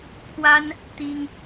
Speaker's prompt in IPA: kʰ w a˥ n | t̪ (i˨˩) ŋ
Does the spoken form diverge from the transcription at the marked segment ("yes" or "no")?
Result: yes